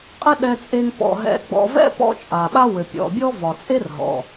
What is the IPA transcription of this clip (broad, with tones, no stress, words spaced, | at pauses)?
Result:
qʼɘ˥ ɗɛ˧t͡sʼe˧ŋ pɔ̰˩ ɦɛ̰˧ɡ͡bɔ̰˧ vɛ̰˥ pɔ̰˧ t͡ʃʼa˩ɓa˥wɘ˩ pʲɔ̰˩bʲɔ˥vɒ˩ t͡sʼe˥rɦɔ̰˩